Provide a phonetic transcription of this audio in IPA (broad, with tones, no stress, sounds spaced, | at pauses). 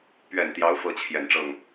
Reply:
p ɥ ɛ˨˩ n t̪ j ɑ˧˥ ʊ̯ f ɤ˥ t͡ɕʰ j ɛ˨˩ n ʈ͡ʂ ɤ˥˩ ŋ